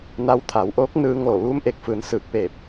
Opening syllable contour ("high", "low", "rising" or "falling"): rising